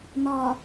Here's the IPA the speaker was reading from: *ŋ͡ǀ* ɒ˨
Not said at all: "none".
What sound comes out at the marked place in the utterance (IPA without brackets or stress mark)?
n